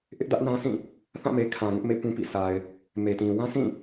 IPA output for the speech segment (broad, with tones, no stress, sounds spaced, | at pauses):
ʔ ɪ˦ ʔ d ä˦ ʔ n ã˦ s ĩ˦˨ | θ ã˦˨ m e˨ kʰ ã˨ ŋ ɪ˦ ʔ m ḛ˦˨ p ũ˦ p ḭ˦˨ s a˨ ɪ̯ | m e˨ t ĩ˨ w ã˦ s ĩ˦˨